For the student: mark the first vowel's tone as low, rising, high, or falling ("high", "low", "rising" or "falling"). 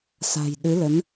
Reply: low